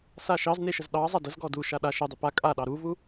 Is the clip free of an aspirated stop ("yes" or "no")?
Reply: yes